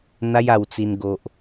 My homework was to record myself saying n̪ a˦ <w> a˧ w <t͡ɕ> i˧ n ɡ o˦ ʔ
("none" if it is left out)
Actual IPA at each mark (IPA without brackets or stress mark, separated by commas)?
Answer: j, t͡s